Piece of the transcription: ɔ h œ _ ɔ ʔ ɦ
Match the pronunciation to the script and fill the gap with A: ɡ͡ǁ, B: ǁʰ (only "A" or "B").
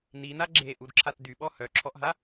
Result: B